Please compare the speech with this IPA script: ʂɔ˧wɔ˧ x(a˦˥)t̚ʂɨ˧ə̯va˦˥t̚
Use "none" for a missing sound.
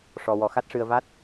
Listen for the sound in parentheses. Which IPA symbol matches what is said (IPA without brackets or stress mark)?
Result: a˦˥